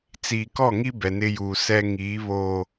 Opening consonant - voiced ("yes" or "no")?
no